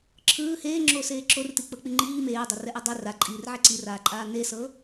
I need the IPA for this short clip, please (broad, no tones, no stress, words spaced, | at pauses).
ǁʰɯː heːŋ͡ǁoː seːǁor tik͡pɤk͡piŋ͡ǃiː meːdˤɛ rɛʔɛdˤe raǃʼiːr ʕɛǀiraːǃʼaː nesɤ